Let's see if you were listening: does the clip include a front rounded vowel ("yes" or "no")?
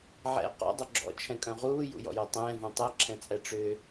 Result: yes